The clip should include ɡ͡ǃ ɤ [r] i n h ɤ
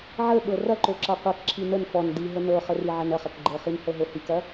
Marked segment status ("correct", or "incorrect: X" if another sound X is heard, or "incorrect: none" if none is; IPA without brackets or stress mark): incorrect: χ